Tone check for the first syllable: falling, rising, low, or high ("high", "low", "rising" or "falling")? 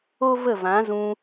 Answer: high